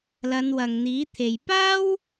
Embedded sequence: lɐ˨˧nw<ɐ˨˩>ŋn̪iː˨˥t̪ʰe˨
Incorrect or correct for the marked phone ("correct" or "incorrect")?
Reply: incorrect